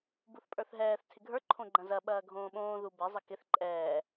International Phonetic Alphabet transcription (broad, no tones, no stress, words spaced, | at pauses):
buθpʼə˞θɦɛːθ tʰɪɡʱə˞ ǃʰõɡ͡ǃɐ̃zɐ ɓɐːɡʱõːɓõː ðubɛ zˤɘkɪθ ǃʼɛː